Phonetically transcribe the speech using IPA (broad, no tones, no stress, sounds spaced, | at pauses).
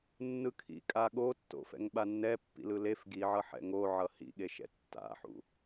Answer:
nː ɯ kʰ ḭ kʼ a ɠ o tː o̰ f ɛ̰ ŋ ɓ a nː ɛ pː ḭ l ɯ l e f ɡ i ʕ ʌ ħ ɛ̰ ŋ o ʕ ʌ h ḭ ɠ e ʃ ɛ̰ tː a̰ ħ ṵ